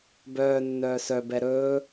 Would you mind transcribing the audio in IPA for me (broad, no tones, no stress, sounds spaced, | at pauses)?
b œː nː œː s œ b ɛ ɾ ɵː